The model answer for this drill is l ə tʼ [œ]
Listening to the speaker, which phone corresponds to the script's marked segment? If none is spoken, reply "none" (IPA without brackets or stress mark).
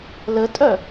œ